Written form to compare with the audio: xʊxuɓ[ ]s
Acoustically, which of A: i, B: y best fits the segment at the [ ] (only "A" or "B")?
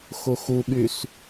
B